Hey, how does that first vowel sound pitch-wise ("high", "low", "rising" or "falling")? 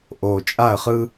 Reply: low